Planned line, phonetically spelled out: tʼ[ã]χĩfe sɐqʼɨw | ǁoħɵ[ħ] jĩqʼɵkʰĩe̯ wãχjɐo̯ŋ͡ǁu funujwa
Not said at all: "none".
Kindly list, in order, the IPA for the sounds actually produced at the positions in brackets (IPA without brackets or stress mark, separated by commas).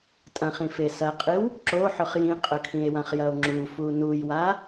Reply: ɐ̃, χ